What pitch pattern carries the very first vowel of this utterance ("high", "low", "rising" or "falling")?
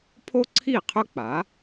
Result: high